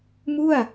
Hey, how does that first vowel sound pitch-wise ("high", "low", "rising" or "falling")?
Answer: falling